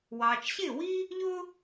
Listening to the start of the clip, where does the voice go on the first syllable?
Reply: low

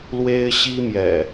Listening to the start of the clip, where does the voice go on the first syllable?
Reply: high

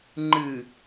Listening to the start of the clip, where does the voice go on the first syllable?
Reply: low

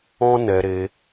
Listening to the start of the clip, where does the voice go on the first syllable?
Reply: high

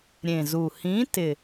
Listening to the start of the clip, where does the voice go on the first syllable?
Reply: low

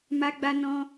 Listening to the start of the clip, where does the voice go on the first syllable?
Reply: high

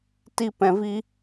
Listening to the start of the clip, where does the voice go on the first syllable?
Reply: high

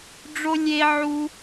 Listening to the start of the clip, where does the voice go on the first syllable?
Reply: high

